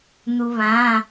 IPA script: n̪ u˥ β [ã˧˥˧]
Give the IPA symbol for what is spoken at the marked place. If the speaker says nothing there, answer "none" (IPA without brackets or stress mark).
ã˧˥˧